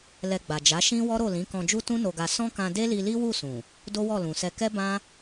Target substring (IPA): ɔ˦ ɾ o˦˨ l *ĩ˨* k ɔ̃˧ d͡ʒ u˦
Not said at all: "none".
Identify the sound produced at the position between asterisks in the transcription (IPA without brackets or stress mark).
ĩ˨˦